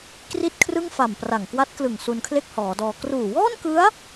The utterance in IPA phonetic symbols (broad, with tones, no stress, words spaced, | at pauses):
kri˥˩t̚kʰrɯ˥˩ŋfa˨˩m pra˨˩ŋkwa˦˥t̚klɯ˨˩ŋ su˧nkʰle˥˩k̚hɔː˩˦dɔː˧ kruː˨˩wɔː˥˩nkɯ˦˥a̯